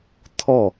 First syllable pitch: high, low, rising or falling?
falling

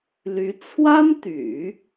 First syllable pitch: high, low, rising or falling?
rising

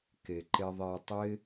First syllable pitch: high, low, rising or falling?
low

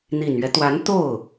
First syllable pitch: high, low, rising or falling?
low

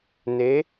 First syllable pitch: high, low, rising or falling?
rising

